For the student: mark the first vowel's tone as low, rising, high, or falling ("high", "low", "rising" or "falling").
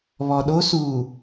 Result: low